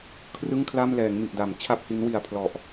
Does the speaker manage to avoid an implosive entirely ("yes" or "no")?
yes